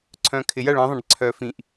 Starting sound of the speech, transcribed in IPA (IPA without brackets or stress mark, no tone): ǀʰ